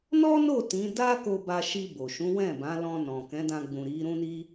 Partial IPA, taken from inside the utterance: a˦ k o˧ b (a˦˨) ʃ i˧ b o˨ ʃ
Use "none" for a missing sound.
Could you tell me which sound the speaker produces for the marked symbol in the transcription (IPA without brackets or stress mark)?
a˧